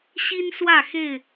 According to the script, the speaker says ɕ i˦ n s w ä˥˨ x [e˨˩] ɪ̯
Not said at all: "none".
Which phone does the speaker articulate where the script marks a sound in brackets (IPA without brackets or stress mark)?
e˥˨